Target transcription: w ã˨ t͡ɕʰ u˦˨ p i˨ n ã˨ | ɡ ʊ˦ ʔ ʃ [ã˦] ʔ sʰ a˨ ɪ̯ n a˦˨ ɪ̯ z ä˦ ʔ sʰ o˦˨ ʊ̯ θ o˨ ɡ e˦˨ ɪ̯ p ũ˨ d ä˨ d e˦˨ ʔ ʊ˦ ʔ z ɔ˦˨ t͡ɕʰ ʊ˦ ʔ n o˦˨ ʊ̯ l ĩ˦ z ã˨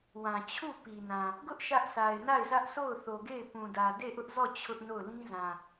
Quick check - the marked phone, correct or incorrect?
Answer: incorrect